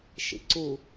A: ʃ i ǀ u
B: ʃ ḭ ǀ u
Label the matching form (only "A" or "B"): B